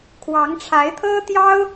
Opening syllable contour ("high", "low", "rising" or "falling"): rising